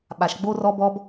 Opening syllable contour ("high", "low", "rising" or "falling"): low